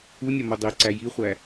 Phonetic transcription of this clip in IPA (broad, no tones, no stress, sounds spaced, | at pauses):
u nʲ ɒ m u dˤ i ǀ æ j i χʷ æ